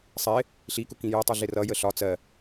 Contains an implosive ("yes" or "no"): no